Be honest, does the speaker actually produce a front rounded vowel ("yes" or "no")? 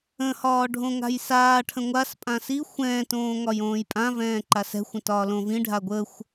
no